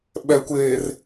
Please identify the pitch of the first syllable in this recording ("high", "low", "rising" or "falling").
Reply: low